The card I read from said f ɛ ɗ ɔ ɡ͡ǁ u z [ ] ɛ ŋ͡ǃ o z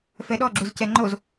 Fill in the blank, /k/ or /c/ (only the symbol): c